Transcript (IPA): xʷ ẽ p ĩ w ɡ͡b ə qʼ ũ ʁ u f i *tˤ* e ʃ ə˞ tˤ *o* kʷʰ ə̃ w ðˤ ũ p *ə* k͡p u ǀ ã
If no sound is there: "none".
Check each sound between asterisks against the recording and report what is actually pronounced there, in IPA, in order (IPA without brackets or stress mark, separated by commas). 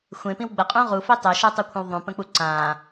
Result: tˤ, u, ə̃